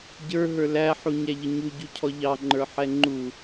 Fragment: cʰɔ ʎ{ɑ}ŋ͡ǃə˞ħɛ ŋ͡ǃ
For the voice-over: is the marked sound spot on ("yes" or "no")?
yes